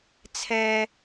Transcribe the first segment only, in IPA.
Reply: t͡sʰ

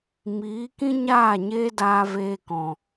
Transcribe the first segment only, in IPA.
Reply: m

